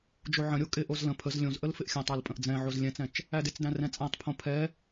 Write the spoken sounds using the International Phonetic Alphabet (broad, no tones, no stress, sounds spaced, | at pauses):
d͡ʒ o ʕ ə̃ ɾʲ o kʼ ɪ ʔ o z l ə̃ pʰ ə z lʲ õ z ʔ ə l f ɪ ʔ xʲ æ̃ tˤ æ l pʼ ə̃ ʔ d͡z ɛ̃ ʕ o z lʲ ɛ̃ t͡s ɛ̃ t͡ʃ | æ d ɪ t͡s d æ̃ r ɛ̃ t͡sʼ æ̃ tˤ pʰ õ pʰ ɛ